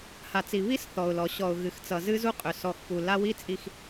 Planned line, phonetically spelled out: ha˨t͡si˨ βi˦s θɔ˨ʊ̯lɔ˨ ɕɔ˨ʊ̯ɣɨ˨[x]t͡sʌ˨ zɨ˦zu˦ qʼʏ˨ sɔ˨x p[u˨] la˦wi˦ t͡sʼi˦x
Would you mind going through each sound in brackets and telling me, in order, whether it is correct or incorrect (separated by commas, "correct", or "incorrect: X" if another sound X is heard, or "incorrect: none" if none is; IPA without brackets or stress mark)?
correct, correct